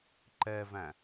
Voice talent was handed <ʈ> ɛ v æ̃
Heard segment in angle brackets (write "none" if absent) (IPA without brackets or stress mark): ǃ